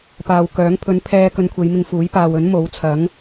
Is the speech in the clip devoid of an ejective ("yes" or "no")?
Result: yes